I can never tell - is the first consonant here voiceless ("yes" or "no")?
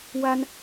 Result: no